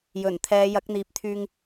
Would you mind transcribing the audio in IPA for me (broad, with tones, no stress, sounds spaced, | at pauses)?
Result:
j ɵ˨˩ n t̪ʰ ɛː˨˧ j ɐ˨˥ k̚ n̪ iː˨ p̚ t̪ʰ yː˧ ŋ